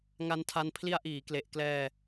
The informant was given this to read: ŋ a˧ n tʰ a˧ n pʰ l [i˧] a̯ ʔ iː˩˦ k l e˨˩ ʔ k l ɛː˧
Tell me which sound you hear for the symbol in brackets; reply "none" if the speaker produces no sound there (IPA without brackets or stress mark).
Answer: i˧